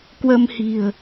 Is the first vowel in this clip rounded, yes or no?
no